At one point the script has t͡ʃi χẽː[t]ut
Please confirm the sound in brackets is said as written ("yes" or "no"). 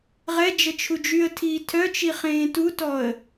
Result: yes